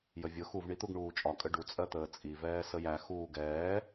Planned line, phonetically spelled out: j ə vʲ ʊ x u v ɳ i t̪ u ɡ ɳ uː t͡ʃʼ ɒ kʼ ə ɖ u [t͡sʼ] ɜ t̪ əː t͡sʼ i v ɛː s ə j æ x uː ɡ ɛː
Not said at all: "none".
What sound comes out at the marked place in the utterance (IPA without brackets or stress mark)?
t͡sʼ